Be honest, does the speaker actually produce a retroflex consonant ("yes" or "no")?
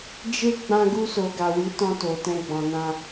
no